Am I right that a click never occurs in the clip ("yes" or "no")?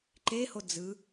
no